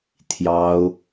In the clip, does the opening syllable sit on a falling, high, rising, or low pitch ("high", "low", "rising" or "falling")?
high